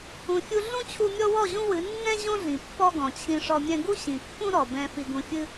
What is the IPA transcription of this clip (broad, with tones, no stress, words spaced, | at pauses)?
ũ˨ fʲu˧ɮũ˦t͡ɕʰu˧ mʲɔ˦ wɔ˦˨ʑũ˦wɨ˨˦ nːɛ̃˦ ʑõ˦ɮĩ˨ pːɔ˦ɡɔ̃˨ t͡ɕʰĩ˧ʂɔ˧mʲɛ̃˦ ɡu˦ɕĩ˨pːũ˦ ɾɔ˨bɛ̃˧ fi˧ɡũ˧fʲɨ˦